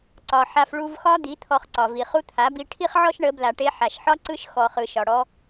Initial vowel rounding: rounded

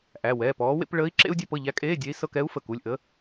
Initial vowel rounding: unrounded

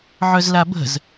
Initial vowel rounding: rounded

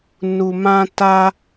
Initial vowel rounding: rounded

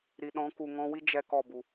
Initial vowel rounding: unrounded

